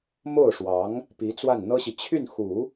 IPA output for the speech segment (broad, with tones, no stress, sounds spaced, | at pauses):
m o˥˩ ʊ̯ ʂ w ɑ˧˥ ŋ | p i˧˥ t͡s w a˥˩ n n̪ ɤ˥ ɕ i˨ t͡ɕʰ y˥˩ n x u˨˩˦